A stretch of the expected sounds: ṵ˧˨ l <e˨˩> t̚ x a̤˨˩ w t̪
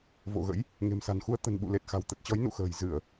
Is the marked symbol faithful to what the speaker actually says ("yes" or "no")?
yes